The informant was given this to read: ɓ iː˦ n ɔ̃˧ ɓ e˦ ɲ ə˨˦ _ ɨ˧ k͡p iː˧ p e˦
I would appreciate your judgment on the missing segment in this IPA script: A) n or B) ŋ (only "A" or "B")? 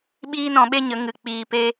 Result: B